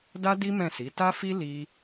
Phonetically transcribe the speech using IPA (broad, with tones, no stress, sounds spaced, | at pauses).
d a˦ d i˦ m ɛ̃˦˨ s i˨˦ t a˦ f i˦ l i˦